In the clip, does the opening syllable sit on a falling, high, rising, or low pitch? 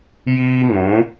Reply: high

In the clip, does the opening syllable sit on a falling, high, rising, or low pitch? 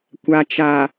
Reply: low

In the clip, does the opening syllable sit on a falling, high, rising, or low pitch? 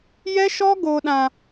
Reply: high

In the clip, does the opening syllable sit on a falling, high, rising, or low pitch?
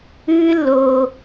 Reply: high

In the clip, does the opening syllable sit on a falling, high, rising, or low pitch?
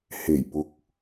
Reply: low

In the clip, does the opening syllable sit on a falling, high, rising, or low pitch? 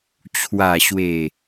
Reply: low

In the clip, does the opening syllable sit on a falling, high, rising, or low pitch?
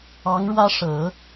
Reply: rising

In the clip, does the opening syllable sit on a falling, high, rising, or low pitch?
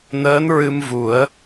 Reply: rising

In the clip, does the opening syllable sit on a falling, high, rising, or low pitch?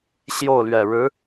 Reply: falling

